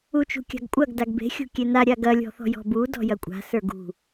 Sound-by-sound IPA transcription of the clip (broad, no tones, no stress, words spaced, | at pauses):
ut͡ʃṳkʲa̤ɡkʷʼɐɡ daɡbe̤ xʲṳkʲena ɾʲaɡɐ lʲɔ̤θɔ̤jɔ̤bu dɔ̤jɐkʷʼa̤ sə˞ɡṳ